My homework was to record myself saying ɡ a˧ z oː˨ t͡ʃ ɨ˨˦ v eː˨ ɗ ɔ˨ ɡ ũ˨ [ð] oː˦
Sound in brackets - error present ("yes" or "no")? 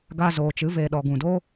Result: yes